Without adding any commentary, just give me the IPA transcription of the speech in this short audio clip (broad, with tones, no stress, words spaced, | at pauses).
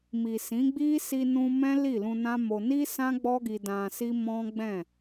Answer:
mi˨sĩ˨˦ɡ͡bi˦ si˧nũ˧ mɛ̃˦ li˦˨lũ˧nã˦mo˧ ni˦sã˦ ɡ͡bɔ˦ɡi˧ dã˧si˦ mɔ̃˦ɡ͡bɛ̃˦˨